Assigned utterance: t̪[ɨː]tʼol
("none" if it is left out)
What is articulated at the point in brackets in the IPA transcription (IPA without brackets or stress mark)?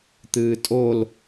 ɨː